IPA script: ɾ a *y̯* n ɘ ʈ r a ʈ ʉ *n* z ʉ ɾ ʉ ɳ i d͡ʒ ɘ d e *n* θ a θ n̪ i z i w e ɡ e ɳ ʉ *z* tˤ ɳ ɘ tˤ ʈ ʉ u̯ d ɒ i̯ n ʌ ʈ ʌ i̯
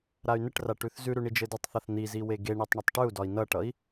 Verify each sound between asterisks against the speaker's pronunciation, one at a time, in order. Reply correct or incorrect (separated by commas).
correct, incorrect, incorrect, incorrect